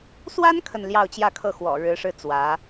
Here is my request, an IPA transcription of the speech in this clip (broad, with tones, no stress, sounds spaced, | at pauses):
s w a˥ n kʰ ə˥˧ n l j ɑ˥˧ ʊ̯ t͡ɕ j ä˥˧ kʰ ɤ˥˩ x w ɔ̰˨˩ ɻ ɻ̩˧˥ ʂ ɻ̩˥˩ t͡s w ä˧˥